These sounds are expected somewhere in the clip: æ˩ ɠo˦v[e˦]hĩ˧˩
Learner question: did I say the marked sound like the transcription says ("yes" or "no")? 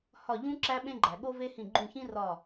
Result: yes